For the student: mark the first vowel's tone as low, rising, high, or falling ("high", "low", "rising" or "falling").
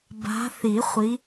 rising